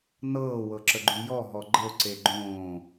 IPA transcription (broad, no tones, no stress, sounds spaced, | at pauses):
n ɤː w ɤ ǁ ə ɡ͡ǃ y j ɔ ɦ ɔ ɡ͡ǃ ə ʊ̯ ǀ e ɡ͡ǃ õː